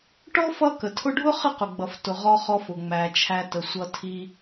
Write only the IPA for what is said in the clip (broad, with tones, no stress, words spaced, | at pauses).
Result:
ʈɔ˥fʌ˦ kə˩tʰʊ˦ɖʱʊ˥ χə˦qʊ˩ɡ͡bʌ˩ftʊ˩ ʁɔ˨χɔ˨f ʊ˩ŋ͡mæ˩t͡ʃʰæ˨ tə˩sʷʌ˨tʰi˨